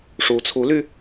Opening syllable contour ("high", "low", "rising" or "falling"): rising